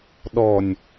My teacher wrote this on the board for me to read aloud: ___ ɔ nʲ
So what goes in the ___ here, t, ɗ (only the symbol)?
ɗ